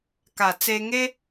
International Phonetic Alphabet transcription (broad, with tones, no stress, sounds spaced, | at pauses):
k a˨˩ t͡s e˧ ŋ e˦